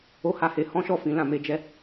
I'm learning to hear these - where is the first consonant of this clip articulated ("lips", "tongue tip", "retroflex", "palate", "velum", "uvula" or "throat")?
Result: throat